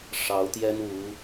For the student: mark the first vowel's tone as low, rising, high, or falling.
rising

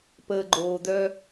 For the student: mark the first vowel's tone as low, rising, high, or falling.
low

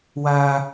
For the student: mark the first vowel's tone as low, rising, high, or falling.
high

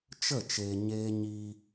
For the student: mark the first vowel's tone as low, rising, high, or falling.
falling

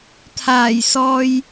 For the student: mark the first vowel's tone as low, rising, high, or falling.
low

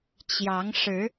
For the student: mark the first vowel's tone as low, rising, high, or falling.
rising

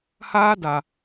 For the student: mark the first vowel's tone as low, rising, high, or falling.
high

